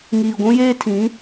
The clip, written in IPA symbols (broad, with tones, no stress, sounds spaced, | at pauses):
ŋ iː˨ ɡʷ ũ˦ j eː˦ tʰ ĩ˨˦